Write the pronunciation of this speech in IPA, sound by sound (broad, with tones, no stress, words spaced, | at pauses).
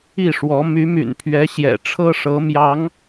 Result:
i˥˩ʂwɔ˧˥ my˧˥my̰˨˩npʰɥɛ˧˥ ɕjɛ̰˨˩ʈ͡ʂʰɤ˥ʂɤ˧˥ mjɑ˧˥ŋ